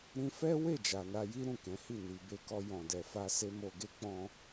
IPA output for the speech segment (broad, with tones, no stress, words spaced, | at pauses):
ɾĩ˧fɛ˦we˦˨ d͡ʒa˨na˧ji˦ ɾũ˦˨kɛ̃˨˦hi˦˨ ni˨ be˧kɔ˧ jɔ̃˨dɛ˨fa˧ se˦mo˧ɡe˦ k͡pɔ̃˧